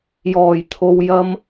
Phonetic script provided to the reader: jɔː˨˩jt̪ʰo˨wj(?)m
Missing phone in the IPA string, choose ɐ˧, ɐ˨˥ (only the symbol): ɐ˧